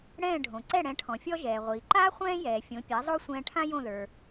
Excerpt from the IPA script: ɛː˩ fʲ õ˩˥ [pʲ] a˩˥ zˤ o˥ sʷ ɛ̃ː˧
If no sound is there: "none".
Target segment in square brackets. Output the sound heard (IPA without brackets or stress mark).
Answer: pʲ